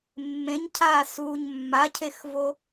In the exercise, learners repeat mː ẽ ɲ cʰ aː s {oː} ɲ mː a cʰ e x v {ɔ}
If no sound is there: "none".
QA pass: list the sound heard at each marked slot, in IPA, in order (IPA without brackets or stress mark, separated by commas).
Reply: uː, o